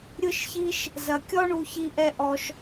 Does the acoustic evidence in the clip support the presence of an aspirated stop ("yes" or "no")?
no